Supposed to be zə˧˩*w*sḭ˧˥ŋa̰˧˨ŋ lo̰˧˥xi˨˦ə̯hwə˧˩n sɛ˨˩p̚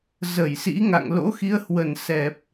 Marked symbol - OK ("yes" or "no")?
no